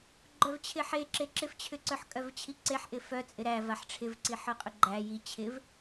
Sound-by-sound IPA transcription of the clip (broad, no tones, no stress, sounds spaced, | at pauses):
ɡ͡ǃ œ v t͡ɕʰ ɪ ħ e ǁ e ǁ ɪ f t͡ɕʰ ʏ ǀ œ ħ kʼ œ v t͡ɕʰ i ǀ e ħ ʔ ɪ f œ t͡sʼ ɪ ɾ æ v a ħ ʈ͡ʂʰ ɪ v ǀ i ħ œ qʼ ʏ ɡ͡ǃ æ j i t͡ɕʰ ɪ v